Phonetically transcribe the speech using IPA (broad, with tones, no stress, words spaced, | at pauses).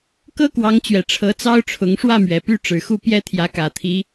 kɤ˥kwɑ˧˥ŋt͡ɕɥɛ˨˩ ʈ͡ʂʰɤ˧˥t͡sɑ˥ʊ̯ʈ͡ʂʰʊ˧˥ŋ ʂwä˥˩mɥɛ˨˩ py˥˩ ʈ͡ʂɻ̩˨˩xu˥˩ pjɛ˥t̪ʰjä˧˥kä˨˩t̪ʰi˧˥